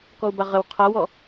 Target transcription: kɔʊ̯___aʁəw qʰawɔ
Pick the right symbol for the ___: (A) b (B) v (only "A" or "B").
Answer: A